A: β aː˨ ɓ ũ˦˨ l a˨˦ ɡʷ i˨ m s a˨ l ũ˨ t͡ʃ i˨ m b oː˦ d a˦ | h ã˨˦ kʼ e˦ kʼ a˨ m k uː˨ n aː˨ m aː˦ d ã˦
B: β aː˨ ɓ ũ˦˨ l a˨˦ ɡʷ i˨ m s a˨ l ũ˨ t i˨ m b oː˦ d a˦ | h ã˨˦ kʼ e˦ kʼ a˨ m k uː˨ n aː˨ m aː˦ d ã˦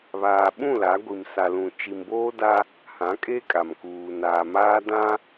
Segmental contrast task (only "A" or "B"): A